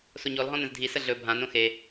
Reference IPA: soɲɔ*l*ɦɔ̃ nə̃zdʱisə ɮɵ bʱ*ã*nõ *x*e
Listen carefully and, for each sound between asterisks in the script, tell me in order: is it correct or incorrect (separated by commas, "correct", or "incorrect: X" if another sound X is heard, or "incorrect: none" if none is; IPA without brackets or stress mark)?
correct, correct, correct